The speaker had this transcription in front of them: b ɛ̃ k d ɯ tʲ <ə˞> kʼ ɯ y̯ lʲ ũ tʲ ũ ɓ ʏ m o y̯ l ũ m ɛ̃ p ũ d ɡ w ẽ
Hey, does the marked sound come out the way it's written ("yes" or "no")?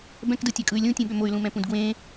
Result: yes